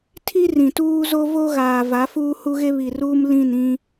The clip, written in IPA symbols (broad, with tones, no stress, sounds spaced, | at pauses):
tʰ i˦ r ĩ˨ t uː˦ z o˦ v o˦ ɣ aː˨ v a˨˦ f uː˦ h u˦ ɣ e˦ β i˨ r uː˦ m l ĩ˦˨ n ĩ˦